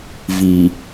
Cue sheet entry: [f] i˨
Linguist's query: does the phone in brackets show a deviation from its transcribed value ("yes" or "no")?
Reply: yes